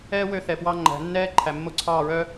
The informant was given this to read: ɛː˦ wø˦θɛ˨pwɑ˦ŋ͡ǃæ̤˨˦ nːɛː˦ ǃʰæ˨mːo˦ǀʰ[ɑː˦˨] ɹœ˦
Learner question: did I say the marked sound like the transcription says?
yes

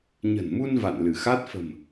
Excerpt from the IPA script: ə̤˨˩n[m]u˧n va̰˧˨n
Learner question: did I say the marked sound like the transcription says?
yes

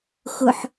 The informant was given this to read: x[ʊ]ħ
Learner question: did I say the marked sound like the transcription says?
yes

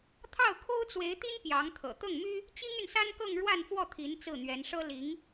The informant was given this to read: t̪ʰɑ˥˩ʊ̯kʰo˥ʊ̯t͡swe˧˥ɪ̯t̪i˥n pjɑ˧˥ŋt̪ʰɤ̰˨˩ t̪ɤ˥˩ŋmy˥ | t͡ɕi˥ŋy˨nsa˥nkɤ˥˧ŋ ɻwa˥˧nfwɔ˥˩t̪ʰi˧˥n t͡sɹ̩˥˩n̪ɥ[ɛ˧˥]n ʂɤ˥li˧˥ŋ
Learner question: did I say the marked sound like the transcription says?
yes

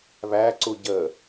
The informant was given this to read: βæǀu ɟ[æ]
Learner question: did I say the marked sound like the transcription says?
no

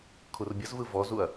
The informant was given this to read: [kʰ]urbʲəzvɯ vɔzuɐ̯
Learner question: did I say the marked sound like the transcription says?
yes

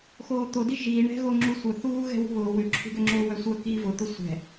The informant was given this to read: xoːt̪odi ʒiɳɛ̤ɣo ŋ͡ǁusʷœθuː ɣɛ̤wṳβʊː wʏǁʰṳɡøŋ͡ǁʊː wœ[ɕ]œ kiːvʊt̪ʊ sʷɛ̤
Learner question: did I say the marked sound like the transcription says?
no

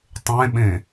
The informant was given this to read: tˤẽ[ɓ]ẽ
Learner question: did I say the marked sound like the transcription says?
yes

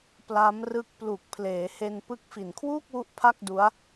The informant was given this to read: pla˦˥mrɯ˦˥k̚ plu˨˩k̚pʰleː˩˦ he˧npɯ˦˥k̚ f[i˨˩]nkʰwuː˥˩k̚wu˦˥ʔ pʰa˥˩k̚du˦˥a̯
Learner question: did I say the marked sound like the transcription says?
yes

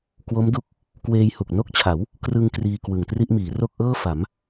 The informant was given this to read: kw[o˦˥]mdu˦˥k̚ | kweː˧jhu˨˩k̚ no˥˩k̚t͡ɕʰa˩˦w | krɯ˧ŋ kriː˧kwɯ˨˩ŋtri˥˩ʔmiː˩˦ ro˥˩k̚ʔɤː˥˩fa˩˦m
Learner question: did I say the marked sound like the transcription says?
yes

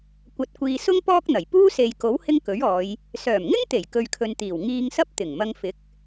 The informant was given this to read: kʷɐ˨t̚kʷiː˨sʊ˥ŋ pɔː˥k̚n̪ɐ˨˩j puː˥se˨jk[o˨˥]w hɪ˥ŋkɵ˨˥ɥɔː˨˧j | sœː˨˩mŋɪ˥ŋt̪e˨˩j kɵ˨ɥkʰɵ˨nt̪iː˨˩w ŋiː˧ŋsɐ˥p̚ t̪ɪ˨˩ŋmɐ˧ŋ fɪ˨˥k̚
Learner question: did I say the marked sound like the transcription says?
yes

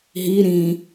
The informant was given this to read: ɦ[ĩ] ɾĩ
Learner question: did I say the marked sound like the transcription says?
no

